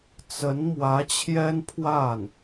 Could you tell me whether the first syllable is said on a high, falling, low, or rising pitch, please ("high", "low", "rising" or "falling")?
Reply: rising